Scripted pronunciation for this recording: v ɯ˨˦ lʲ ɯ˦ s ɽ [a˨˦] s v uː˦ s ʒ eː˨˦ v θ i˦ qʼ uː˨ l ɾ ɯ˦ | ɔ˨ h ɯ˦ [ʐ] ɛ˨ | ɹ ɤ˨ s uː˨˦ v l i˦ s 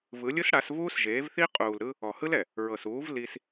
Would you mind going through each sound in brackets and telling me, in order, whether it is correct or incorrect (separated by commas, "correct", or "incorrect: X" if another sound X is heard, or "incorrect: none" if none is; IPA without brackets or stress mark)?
correct, incorrect: l